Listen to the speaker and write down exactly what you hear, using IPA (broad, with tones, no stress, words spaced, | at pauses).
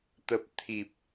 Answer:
t̪ə˨˩p̚ t̪ʰi˨˩p̚